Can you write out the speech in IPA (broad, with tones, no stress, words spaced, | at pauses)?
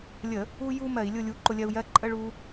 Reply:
lʲə˧˩˧ | u˧ju˧ mɜ˧˩˧i̯lʲʊ˥˨ lʲu˨˥ǃʊ˧lʲɜ˧u̯jɜ˧˥˧ ǃʼə˧˥˧ ɭu˧